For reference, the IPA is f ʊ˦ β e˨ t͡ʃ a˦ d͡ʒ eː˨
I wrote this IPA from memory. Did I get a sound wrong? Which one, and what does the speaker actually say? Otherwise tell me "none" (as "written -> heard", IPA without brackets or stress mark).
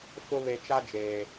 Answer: none